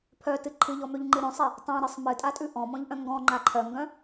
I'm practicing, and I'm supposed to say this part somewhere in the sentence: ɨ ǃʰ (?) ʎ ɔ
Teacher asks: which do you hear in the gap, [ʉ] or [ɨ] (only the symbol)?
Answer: ɨ